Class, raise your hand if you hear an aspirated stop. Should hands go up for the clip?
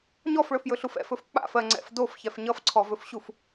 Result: yes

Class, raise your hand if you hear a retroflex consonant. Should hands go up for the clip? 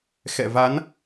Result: no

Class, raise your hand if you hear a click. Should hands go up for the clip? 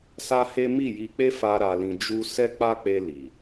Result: no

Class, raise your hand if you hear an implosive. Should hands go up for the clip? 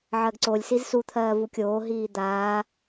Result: no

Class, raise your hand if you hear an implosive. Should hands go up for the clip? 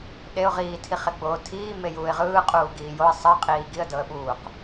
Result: yes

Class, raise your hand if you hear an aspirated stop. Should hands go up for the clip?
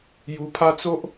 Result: yes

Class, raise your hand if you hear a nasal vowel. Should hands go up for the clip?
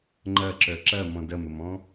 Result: yes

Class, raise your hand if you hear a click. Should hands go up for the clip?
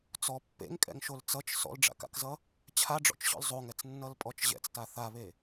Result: no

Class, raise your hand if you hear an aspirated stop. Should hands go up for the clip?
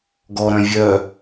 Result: no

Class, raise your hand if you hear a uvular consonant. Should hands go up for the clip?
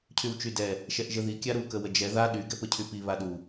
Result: no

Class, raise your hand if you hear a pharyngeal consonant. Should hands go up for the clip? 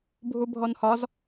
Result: no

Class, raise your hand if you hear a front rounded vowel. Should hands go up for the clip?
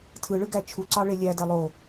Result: no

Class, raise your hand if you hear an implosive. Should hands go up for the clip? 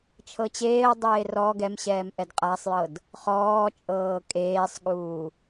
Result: yes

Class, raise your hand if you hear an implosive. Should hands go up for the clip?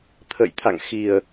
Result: no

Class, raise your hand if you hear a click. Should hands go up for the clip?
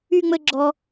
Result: yes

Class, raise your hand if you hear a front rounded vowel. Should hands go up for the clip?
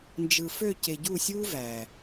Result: yes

